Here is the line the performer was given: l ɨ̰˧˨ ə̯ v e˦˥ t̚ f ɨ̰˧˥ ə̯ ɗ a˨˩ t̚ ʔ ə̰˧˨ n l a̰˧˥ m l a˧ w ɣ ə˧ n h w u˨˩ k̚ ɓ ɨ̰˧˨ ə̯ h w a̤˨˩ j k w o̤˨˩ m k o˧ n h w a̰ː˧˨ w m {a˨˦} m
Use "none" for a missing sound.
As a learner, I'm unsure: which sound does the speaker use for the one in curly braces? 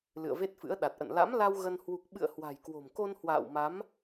a˨˦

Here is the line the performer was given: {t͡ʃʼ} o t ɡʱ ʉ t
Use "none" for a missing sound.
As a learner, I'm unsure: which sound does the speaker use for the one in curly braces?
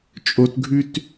t͡ʃʼ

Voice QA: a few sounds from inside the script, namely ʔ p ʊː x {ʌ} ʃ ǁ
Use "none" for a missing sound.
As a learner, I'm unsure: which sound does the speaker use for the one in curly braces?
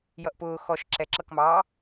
ɔ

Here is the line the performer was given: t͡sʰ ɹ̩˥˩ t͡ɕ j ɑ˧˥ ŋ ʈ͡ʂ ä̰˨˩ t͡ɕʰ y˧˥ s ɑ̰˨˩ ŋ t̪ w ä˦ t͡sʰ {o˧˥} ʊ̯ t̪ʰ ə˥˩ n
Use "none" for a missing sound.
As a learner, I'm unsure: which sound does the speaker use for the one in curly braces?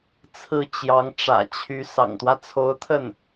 o˧˥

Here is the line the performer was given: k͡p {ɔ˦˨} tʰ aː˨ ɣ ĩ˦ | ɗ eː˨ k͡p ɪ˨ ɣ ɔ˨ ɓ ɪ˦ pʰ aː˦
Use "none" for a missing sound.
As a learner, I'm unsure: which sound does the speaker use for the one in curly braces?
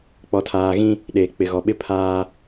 ɔ˨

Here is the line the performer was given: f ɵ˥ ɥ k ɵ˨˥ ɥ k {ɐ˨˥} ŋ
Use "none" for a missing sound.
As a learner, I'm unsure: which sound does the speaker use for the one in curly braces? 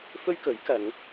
ɐ˨˧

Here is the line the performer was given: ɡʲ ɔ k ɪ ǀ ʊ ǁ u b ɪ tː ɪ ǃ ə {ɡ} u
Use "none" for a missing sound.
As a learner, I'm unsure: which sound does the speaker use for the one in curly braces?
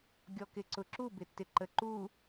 ǃ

